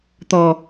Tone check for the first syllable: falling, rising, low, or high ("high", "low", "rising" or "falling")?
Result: low